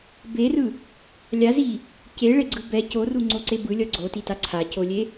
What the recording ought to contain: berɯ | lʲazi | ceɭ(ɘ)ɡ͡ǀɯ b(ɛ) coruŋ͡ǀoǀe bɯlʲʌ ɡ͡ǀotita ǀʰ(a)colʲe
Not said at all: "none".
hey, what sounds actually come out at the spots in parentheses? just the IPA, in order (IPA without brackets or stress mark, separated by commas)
e, ɛ, a